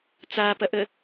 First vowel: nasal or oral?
oral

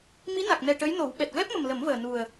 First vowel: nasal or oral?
oral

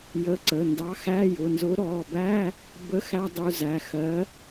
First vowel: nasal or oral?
oral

